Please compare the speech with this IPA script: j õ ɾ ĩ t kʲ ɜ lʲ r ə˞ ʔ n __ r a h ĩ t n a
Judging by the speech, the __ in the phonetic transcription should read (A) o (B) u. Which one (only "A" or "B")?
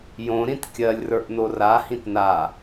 A